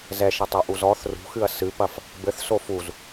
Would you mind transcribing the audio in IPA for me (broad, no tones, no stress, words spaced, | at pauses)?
zɛʃɐtˤoʔuz ɔθ rṳxɨɐ̯ sɨpɐf | bɘθso fuz